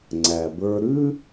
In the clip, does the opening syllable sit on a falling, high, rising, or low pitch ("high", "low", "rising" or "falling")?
low